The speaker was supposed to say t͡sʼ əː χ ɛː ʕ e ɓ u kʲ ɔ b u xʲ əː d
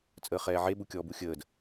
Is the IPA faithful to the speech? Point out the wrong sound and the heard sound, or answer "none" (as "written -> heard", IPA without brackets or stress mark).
none